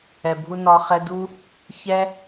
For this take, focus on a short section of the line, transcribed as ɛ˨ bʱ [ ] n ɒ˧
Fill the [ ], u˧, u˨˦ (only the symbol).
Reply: u˧